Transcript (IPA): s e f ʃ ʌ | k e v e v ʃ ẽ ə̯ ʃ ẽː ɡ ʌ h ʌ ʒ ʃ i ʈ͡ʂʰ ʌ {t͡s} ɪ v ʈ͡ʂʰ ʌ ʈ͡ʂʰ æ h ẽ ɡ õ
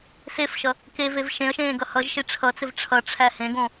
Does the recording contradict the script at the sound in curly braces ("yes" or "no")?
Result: no